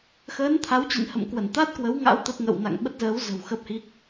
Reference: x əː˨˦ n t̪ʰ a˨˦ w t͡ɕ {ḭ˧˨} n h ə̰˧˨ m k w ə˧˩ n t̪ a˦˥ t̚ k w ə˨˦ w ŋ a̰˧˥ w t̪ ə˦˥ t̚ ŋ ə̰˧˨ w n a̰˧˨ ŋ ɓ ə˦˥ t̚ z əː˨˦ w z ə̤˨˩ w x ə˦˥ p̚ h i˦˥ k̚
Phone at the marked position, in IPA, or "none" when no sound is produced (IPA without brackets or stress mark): ḭ˧˨